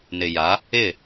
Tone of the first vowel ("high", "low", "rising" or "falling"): low